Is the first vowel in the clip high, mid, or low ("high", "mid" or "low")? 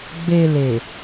mid